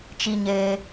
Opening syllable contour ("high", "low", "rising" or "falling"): high